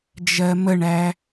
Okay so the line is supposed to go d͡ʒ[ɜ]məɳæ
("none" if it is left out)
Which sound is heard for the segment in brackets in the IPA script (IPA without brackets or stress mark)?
ɜ